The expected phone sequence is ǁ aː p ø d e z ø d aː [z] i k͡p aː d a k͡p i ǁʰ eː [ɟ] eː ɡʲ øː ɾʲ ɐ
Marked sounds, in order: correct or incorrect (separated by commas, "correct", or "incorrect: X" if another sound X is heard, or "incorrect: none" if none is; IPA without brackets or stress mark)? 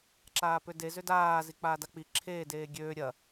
correct, incorrect: d